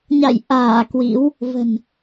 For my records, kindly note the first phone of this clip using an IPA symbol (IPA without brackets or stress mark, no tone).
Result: ɲ